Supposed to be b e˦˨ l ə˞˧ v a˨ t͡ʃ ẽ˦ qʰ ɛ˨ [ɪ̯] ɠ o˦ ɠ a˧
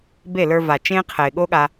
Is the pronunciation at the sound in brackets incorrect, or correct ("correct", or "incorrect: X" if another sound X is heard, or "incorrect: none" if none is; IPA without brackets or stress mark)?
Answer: correct